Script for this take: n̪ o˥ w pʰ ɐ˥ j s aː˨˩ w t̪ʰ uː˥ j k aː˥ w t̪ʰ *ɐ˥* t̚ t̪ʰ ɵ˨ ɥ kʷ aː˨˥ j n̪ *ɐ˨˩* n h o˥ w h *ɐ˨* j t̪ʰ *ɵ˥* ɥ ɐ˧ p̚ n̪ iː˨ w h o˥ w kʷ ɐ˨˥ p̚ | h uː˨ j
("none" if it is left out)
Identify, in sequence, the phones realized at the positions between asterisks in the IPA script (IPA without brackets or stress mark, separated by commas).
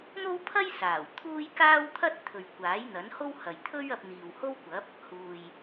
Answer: ɐ˥, ɐ˨˥, ɐ˨, ɵ˥